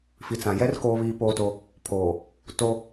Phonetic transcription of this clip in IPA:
f i˨ t͡s ã˨ j ɛ˦ r k oː˦ β iː˦ p oː˦ t o˦ | pʰ oː˨ | t o˦

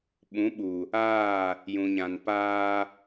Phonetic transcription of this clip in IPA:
ɓ ũ˨˦ ɓ u˨ | aː˦˨ | j ũ˨ ɲ ã˨ n p aː˦

